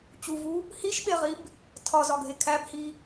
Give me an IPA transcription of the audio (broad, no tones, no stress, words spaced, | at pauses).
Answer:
t͡ɕuvu | hiʃɓeʁib | tʰɒzɒɡʱe kʰæbhi